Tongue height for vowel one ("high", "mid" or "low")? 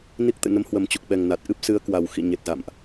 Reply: high